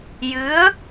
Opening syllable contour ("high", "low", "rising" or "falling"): rising